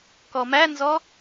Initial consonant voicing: voiceless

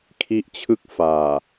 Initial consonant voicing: voiceless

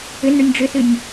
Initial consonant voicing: voiced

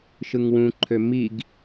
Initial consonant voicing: voiceless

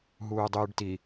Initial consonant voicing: voiced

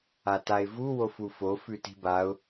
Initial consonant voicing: voiceless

